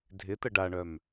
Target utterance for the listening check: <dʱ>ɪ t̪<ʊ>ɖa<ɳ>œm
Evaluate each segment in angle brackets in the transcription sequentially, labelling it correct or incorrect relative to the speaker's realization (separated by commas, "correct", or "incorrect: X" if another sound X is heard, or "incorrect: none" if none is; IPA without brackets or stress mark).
correct, incorrect: ə, correct